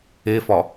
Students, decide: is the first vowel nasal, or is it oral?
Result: oral